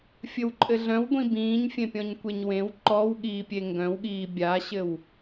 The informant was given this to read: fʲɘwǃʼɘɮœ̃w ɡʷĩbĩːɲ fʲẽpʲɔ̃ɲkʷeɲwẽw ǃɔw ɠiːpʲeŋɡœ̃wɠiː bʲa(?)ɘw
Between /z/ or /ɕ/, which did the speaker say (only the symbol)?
ɕ